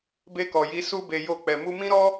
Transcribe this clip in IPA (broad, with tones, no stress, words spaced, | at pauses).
be˧kɔ˨ji˨˦ su˧be˨ jo˧k͡pɛ˨ mu˧mĩ˦ɾɔ˦